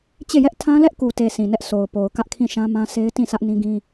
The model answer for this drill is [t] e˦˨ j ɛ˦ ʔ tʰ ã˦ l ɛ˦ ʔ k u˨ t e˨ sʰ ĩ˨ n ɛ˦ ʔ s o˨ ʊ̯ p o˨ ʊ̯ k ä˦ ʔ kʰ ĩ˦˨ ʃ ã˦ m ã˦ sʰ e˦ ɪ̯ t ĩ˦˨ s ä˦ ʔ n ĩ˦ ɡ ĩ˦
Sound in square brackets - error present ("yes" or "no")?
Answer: yes